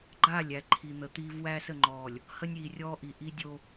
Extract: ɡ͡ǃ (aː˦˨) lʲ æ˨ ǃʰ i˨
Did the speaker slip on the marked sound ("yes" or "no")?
no